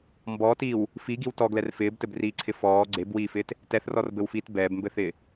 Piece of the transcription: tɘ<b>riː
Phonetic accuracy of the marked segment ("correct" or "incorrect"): correct